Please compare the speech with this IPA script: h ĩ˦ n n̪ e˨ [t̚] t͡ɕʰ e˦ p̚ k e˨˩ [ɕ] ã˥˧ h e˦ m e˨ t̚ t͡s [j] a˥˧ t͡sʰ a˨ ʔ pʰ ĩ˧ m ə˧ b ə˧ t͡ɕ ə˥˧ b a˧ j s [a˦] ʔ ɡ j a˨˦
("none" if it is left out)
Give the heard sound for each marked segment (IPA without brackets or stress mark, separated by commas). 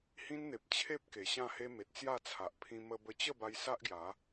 p̚, ɕ, j, a˦